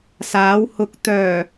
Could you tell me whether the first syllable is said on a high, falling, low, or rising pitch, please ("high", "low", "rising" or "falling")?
rising